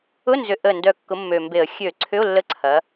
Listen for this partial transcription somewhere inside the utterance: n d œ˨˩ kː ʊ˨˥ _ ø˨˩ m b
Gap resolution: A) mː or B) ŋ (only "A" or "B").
A